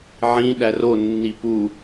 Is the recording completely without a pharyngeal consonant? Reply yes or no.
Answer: no